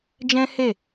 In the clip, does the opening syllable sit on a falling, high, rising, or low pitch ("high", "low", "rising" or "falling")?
high